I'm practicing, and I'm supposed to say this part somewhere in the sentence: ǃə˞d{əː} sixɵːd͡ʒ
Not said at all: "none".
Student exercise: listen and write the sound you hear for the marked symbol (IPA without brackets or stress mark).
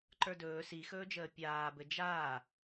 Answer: ɵː